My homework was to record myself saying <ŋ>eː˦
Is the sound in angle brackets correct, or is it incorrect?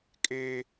incorrect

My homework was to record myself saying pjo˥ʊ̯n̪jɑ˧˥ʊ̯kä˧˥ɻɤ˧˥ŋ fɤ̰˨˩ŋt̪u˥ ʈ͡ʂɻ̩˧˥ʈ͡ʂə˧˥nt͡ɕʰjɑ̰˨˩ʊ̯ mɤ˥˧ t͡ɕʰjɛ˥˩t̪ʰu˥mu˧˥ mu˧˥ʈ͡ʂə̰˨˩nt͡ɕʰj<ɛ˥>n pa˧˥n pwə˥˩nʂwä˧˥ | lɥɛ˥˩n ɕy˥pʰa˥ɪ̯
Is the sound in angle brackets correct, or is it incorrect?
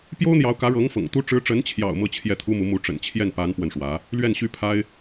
incorrect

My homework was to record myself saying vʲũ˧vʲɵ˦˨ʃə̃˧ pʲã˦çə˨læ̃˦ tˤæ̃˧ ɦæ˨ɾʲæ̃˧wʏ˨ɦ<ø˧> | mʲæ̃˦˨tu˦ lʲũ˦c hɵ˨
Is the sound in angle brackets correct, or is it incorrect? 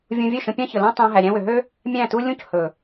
incorrect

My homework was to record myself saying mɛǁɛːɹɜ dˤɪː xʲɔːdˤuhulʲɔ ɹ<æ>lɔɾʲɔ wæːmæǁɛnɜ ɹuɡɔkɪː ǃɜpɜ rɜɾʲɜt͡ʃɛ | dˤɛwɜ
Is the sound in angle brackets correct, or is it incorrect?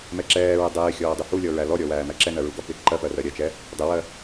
correct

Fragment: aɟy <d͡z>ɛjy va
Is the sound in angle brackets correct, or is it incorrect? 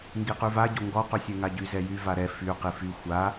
incorrect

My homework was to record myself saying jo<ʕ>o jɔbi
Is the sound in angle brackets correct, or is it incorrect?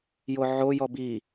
correct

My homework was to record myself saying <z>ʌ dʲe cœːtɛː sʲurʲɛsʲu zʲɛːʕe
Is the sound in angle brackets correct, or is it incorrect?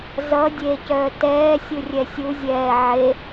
correct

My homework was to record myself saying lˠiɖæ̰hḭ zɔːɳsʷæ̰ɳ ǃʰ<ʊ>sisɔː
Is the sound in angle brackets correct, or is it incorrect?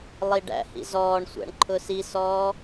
correct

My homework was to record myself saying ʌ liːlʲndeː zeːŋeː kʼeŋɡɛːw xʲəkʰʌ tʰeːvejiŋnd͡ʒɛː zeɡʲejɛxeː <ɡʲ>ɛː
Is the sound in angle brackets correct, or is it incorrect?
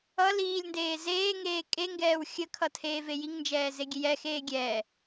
correct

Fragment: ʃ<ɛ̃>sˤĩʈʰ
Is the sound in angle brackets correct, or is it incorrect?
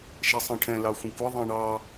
incorrect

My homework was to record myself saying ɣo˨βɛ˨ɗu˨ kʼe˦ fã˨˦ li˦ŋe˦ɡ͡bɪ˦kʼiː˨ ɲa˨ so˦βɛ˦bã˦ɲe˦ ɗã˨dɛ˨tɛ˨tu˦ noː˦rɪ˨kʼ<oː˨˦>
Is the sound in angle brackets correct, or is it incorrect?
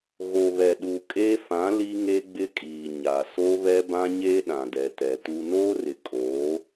correct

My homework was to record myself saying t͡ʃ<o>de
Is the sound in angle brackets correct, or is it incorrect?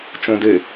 incorrect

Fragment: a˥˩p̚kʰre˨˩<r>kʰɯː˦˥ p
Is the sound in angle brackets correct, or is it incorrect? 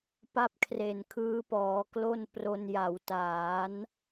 incorrect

